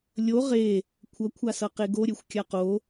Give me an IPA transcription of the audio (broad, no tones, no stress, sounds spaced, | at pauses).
lʲ o ʁ e | kʷʰ ʌ kʷʰ a s ʌ q e ɡ o ɾʲ e xʷ kʲ a q o